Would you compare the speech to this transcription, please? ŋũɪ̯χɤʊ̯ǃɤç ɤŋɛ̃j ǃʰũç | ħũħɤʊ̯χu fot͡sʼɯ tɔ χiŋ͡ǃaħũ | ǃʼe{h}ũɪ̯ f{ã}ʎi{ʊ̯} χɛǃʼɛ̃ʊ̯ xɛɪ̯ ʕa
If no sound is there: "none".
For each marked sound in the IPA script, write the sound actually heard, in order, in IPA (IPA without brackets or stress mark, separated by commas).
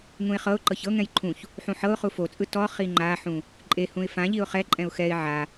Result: h, ã, ʊ̯